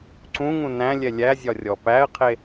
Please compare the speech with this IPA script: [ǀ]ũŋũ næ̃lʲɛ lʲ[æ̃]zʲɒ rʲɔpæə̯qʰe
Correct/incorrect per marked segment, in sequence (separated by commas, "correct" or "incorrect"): correct, incorrect